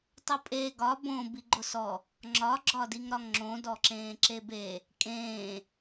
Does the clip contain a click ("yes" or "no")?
yes